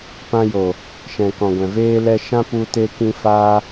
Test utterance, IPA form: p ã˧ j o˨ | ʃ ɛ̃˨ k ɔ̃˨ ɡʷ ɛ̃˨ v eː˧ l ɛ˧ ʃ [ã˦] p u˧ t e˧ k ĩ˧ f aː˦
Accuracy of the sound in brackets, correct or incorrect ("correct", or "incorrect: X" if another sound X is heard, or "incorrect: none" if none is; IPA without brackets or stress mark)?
correct